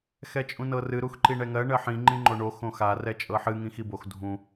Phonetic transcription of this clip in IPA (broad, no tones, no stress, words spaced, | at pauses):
xɛt͡ʃʼũnɤrɨ ɾuxǃiɳɛŋɜ ɳɜħĩ ŋ͡ǃĩŋ͡ǃoɳo xõxa rɛt͡ʃʼɤħɨ ŋĩxibox dʱũ